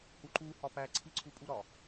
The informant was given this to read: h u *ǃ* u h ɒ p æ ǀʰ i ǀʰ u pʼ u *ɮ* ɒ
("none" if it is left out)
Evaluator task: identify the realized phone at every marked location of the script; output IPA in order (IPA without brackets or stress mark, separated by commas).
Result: ǃ, ɾ